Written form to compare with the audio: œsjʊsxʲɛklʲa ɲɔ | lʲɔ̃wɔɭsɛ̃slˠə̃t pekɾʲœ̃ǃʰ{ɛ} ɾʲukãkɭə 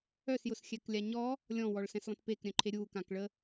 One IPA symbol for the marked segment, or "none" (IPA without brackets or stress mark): e